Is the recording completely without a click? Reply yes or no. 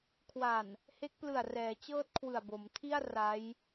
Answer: yes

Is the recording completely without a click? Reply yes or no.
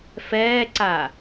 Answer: no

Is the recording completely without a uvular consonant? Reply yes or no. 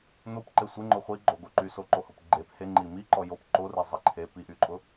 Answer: no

